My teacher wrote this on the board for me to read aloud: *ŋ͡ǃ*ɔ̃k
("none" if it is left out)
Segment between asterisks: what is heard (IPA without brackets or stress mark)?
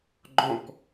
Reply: ɡ͡ǃ